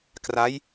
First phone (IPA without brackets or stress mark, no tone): k